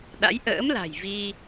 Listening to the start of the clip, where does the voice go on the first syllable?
rising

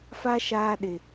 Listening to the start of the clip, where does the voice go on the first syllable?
high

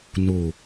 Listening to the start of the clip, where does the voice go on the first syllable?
low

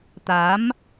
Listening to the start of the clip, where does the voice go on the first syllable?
rising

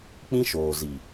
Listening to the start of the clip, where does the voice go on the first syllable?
high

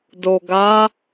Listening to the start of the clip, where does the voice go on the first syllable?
low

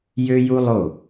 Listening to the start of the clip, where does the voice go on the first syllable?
high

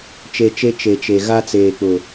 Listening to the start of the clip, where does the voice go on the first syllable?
low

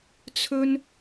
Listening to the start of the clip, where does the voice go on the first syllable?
high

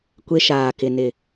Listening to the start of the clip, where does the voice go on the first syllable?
high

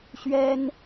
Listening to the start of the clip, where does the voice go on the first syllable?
high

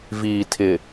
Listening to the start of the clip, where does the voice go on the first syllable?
low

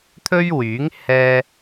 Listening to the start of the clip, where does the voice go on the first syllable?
high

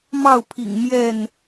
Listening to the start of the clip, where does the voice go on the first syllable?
falling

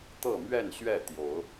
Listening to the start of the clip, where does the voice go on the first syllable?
falling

